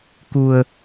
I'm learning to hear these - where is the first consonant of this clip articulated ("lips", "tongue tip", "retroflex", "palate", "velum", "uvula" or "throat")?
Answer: velum